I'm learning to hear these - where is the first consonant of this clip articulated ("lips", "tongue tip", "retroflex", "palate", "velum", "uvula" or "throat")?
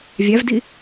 lips